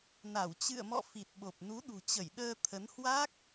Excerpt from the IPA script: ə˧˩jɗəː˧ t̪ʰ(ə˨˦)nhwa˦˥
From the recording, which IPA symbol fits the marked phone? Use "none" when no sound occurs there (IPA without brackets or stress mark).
ə˨˦